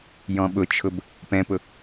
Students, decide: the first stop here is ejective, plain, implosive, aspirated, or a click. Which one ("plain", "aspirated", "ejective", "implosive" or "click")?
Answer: implosive